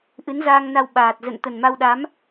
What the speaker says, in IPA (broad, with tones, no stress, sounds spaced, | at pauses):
ʔ ɨ˨˦ n z aː˧ ŋ n a˧ w ɓ aː˨˩ t̚ z ə̰˧˨ n t̪ ə˨˩ n m a˧ w ɗ a˨˦ m